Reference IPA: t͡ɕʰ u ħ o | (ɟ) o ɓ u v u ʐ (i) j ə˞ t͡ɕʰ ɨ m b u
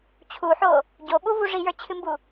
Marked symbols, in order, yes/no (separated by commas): yes, yes